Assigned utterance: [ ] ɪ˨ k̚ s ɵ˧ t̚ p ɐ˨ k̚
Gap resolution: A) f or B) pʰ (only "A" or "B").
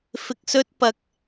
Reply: A